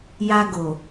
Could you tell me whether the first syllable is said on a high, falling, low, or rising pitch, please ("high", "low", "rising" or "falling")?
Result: high